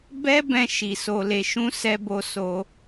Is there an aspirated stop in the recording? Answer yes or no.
no